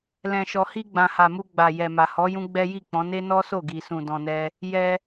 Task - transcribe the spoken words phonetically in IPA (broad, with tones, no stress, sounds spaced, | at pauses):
l ɛ̃˧ ʃ ɔ˧ h i˧ ɡ͡b ã˨ h a˨ m u˧ ɡ͡b a˨ j ɛ˨ m a˨ h ɔ˨˦ j ũ˦ ɡ͡b ɛ˦ j i˦˨ k͡p ɔ̃˨˦ n e˦ n ɔ˦ s o˦˨ ɡ i˨ s ũ˨ d ɔ̃˧ n ɛ˦ | j ɛ˧